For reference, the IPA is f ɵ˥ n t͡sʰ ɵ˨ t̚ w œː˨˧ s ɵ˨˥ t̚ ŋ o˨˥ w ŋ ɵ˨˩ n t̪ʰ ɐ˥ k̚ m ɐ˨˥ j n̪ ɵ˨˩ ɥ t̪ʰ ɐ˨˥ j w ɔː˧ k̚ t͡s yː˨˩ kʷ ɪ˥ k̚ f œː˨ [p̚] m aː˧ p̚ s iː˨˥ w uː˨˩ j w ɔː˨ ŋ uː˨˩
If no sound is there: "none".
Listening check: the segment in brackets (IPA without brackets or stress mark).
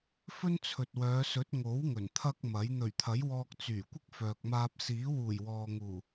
k̚